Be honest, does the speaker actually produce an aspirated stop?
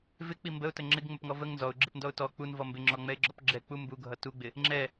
no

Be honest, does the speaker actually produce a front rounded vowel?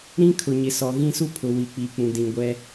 no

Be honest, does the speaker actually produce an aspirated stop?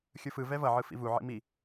no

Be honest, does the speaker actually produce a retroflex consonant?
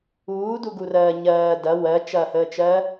no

